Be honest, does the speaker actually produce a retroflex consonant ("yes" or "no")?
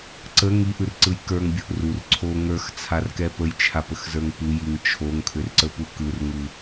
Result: no